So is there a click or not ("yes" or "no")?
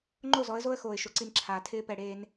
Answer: yes